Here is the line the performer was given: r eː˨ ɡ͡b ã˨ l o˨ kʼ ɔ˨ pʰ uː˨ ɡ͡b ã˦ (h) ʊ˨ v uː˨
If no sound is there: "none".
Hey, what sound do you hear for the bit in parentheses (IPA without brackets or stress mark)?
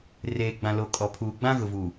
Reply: ɣ